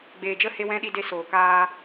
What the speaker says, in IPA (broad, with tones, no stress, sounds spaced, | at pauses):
ɡ͡b eː˨ d͡ʒ ə˦˨ h e˧ w ɛ̃˦ ɗ i˧ d e˧ s oː˨ k aː˧